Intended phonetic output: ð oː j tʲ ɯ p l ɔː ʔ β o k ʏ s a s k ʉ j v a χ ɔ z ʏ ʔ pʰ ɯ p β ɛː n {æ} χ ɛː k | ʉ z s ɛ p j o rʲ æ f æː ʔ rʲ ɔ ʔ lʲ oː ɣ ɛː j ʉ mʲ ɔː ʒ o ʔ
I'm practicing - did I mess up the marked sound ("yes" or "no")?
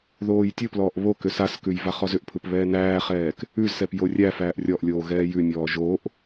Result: yes